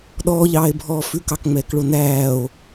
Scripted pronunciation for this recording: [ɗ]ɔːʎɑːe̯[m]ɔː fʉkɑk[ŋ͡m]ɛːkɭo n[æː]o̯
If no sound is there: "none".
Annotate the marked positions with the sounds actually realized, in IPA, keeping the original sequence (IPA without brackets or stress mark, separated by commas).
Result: ɗ, bʱ, ŋ͡m, æː